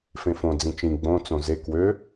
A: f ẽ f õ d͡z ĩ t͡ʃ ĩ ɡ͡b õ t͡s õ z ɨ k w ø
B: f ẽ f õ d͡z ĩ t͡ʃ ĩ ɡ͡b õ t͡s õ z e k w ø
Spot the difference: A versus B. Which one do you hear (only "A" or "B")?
B